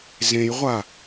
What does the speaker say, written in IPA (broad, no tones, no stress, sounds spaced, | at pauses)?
z ẽ j ʁʷ a